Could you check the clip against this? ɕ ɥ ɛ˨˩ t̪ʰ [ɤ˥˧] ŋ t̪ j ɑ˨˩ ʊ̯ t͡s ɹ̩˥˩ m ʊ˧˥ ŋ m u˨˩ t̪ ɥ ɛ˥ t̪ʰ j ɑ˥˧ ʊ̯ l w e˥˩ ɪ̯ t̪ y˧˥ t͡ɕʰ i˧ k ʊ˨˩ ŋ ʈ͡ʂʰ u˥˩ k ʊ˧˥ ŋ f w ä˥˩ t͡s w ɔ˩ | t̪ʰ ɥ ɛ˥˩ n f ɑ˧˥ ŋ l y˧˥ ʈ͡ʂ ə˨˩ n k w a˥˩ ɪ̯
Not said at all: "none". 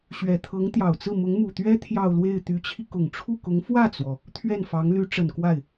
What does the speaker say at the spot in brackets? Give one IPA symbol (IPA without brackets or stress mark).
ɤ˧˥